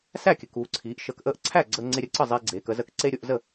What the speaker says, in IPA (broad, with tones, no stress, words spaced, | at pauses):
sæ˥˩kʲə˩˧k uː˩˧ǀʰiː˩˧ʔ ʃəː˧k ʔəː˧ʔǀʰæ˥˩ ɡ͡ǀəː˧ŋ͡ǀe˧ɾʲə˧ǀə˥˩ zˤiː˧ɡ͡ǀeː˩˧kə˩˧zəː˧k ǀe˧ ɾʲo˩˧ʔzə˥˩